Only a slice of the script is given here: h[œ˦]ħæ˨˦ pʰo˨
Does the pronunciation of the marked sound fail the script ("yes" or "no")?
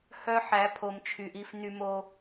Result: no